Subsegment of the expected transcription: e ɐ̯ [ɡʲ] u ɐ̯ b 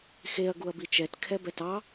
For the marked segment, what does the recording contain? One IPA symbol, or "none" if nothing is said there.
ɡ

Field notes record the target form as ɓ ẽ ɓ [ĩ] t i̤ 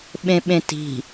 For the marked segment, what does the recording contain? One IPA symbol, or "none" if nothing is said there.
ẽ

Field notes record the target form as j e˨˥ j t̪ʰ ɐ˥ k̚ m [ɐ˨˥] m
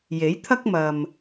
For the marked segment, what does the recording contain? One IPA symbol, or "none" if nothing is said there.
ɐ˨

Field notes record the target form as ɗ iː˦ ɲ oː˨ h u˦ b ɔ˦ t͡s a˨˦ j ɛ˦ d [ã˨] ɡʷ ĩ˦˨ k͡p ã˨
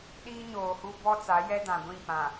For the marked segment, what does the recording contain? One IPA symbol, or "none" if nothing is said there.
ã˨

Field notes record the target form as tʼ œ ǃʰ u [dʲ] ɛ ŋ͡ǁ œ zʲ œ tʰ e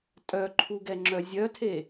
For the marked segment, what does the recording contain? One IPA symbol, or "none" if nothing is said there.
ɡ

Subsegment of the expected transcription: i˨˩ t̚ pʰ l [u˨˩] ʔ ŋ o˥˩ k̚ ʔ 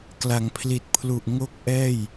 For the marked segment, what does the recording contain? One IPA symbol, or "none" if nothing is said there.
u˨˩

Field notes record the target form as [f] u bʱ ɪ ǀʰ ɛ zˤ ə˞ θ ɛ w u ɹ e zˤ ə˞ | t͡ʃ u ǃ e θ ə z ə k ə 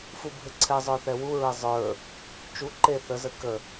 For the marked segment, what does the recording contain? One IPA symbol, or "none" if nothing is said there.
f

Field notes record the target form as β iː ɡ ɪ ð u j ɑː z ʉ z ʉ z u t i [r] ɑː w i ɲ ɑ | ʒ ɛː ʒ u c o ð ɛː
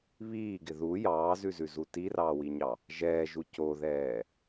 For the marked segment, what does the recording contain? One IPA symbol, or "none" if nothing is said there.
r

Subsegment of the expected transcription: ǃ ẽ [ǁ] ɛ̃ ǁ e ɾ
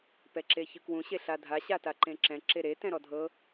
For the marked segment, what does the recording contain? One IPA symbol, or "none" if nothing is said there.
ǁ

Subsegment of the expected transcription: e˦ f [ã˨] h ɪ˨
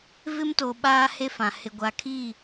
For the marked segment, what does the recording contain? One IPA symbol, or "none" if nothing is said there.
ã˨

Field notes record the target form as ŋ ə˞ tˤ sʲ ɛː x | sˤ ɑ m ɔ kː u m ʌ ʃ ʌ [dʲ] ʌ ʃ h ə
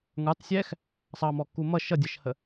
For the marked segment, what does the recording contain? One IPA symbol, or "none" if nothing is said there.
dʲ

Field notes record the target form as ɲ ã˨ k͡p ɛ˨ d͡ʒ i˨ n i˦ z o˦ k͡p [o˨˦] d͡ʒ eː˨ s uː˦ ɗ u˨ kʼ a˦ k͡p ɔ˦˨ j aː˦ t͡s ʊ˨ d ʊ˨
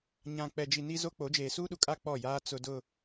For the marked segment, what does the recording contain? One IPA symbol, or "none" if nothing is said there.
o˨˦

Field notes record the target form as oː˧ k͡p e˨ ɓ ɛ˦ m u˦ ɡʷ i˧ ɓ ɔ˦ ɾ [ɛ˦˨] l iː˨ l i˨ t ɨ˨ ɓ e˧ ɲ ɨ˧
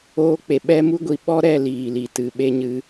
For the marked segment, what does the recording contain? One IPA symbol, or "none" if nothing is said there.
ɛ˦˨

